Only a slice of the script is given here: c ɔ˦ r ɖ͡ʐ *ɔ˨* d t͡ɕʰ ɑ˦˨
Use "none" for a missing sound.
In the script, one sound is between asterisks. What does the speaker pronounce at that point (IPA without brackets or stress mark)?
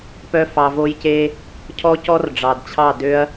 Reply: ɑ˨